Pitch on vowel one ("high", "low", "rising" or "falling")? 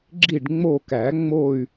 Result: falling